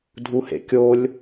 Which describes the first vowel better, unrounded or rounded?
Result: rounded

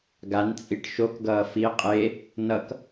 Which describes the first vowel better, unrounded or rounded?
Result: unrounded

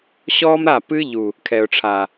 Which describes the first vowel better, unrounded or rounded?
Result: rounded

